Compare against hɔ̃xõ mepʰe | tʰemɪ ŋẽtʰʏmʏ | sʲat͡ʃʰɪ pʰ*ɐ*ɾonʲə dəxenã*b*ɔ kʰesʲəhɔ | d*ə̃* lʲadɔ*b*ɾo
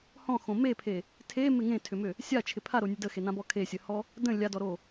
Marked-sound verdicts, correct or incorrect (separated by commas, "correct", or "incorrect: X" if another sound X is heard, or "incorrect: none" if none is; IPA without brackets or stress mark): incorrect: a, correct, correct, incorrect: none